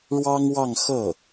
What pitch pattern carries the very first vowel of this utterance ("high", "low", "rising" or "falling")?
high